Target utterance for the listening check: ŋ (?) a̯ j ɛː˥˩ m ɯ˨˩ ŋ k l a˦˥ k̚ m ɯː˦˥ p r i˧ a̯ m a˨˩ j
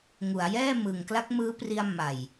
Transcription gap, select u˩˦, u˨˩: u˩˦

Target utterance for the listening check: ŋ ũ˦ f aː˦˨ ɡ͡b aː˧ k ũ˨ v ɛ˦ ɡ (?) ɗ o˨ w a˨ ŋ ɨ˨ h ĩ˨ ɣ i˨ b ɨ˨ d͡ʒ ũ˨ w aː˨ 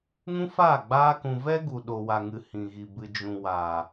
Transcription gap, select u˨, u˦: u˨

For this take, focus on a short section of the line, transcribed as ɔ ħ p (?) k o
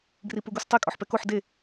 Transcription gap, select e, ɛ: ɛ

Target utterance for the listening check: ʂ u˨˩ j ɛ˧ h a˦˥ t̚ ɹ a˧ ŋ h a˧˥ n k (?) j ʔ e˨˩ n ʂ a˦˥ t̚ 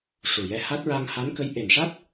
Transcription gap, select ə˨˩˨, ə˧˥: ə˧˥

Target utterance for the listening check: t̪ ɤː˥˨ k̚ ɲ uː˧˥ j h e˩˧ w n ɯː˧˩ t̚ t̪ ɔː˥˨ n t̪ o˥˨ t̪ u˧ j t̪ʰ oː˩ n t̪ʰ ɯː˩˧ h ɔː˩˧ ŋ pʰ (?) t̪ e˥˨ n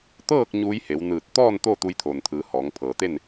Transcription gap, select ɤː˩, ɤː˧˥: ɤː˩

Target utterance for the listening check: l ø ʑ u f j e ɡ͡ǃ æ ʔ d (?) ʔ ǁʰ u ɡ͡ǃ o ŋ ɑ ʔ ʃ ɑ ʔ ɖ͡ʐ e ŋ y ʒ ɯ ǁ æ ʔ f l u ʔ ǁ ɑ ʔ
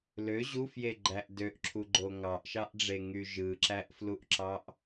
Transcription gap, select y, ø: ø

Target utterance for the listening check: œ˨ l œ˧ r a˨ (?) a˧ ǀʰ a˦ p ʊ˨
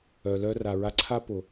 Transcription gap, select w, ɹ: ɹ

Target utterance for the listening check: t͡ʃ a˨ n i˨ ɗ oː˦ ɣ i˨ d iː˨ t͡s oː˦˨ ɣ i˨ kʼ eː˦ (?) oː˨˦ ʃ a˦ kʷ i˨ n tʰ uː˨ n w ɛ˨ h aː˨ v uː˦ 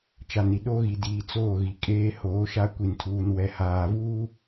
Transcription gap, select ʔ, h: h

